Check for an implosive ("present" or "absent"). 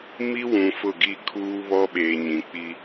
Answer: present